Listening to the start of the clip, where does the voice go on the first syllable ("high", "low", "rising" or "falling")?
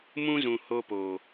high